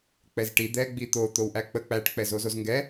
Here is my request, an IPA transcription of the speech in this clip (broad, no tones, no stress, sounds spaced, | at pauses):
k͡p ɛ z ʈ i d̪ ɛ ɡ͡b i t̪ o t̪ o w ʔ æ k͡p ə k͡p æ ʈ k͡p ɛ z o z o z ŋ ɡ ɛ